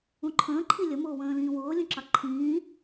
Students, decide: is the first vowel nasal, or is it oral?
nasal